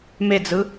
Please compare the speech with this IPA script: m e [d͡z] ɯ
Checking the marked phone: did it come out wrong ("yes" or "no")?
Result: no